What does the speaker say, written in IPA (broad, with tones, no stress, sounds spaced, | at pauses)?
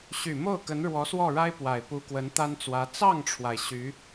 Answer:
ɕ y˨˩ m o˥˩ ʊ̯ k ə˧˥ n ɻ w ɔ˧˥ s w ɔ˥˩ ɻ a˥ ɪ̯ p w a˨˩ ɪ̯ p u˧˥ k w ə˧˥ n t̪ a˥ n t͡s w ä˧˥ t͡s ɑ˥˩ ŋ ʈ͡ʂʰ w a˩ ɪ̯ ɕ y˧˥